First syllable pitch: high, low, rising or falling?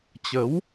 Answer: rising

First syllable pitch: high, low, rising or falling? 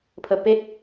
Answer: low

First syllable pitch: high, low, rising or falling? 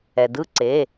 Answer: low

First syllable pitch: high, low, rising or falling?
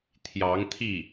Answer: rising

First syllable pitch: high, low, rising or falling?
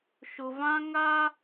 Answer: low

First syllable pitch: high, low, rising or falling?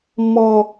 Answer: high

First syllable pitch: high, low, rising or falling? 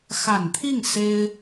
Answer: low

